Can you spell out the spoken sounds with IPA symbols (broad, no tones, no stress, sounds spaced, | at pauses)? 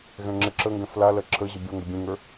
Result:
ɣ ɛ̃ ŋ͡ǁ ɘ ǁ ə ŋ ɡ ɛ̃ f l a l ɜ ǁʰ ə ʑ ɘ bʲ o ŋ ɡ ə bʲ ẽ ŋ ə˞